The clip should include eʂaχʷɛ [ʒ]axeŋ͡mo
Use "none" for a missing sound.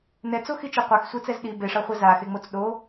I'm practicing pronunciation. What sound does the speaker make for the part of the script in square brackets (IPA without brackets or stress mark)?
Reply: z